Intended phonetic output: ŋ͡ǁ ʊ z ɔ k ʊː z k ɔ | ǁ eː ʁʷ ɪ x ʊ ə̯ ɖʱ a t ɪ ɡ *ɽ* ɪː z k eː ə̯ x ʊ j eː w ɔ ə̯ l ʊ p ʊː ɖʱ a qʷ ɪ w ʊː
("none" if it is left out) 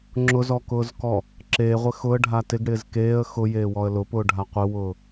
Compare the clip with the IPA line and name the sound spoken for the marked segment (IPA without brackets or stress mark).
ɽ